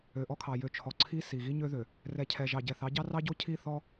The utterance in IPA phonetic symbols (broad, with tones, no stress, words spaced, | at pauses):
ø˨ʔɔ˦kʰɑ˨ jø˨t͡ʃʰɔ˨ ǀʰi˦ si˨ɣi˦ɲø˦ðø˨ | rɛ˨cʰɛ˨ ʒɑ˨ɟɛ˨θɑ˨˦ɟɑ˦ rɑ˦ɟo˦ cʰi˦˨ θɔ˦